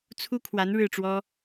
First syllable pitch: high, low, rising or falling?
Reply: high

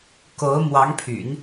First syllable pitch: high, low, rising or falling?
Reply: rising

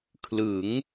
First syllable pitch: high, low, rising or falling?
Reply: rising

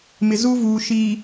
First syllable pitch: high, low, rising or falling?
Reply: low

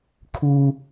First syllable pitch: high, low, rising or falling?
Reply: high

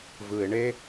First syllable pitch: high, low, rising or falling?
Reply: low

